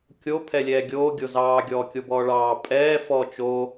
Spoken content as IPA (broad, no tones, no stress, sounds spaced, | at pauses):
kʲ o pʰ ɛ lʲ ɛː ɡʲ oː ɡʲ o z ɑː ɡʲ ɔː kʲ o b ɔː ɭ ɑː pʼ ɛː f ɔ t͡ʃ o